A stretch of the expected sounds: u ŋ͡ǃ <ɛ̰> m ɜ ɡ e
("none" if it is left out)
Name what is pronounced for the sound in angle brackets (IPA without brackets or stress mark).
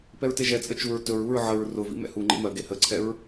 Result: ḛ